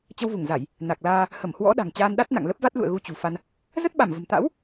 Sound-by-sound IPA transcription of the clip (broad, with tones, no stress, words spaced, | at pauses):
t͡ɕə˧wvu˧˩ŋza˧˩˨j | na˨˩k̚laː˧ | hə˧˩mhwɔ̰˧˥ ɗa̤˨˩ŋt͡ɕaː˧nɗa˦˥t̚ na̰˧˨ŋlə˦˥p̚va˦˥t̚lṵ˧˨ə̯ ɣu˧t͡ɕṳ˨˩fa˧n | zə˦˥t̚ɓa˧˩mvə̤˨˩m t̪a̰˧˥w